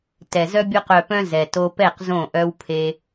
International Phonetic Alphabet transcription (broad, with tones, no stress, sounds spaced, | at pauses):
t ɛ˨ z œ˦ bʲ o˧ q œ˨ p œ̃˧ z ɛ˨ t o˧ p ɛ˦˨ q z õ˦˨ ʔ œ˦ w pʰ e˦